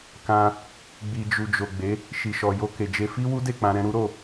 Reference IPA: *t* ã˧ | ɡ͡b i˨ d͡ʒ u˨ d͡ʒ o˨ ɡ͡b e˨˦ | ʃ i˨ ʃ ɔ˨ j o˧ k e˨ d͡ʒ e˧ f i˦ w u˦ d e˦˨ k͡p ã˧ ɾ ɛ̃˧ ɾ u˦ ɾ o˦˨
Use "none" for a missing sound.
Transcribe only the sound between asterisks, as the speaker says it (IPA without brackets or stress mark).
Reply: k